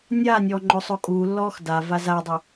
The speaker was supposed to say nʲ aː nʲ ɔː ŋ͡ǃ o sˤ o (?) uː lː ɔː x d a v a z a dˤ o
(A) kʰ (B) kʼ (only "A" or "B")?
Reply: B